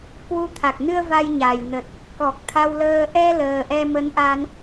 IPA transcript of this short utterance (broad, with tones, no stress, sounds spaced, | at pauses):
k w u˧ t̪ʰ a˨˩ k̚ n ɨ˧ ə̯ v a˧ j ɲ a˨˩ j n ə˨˩ t̚ | k ɔ˨˩ k̚ t̪ʰ a˧ w l əː˧ ʔ ɛ˧ l əː˨˩ ʔ ɛ˧ m ə˨˦ n ʔ a˧ n